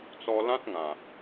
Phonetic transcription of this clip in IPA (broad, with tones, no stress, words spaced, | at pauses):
t͡sɔ˧lã˦t̚ ŋã˨˩